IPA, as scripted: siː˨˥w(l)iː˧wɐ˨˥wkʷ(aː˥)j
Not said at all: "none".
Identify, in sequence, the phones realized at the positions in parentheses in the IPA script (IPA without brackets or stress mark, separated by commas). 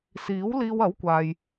l, aː˨